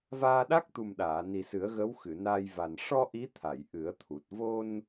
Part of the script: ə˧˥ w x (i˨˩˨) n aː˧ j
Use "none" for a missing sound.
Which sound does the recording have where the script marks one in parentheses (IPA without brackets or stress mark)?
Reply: ɨ˨˩˨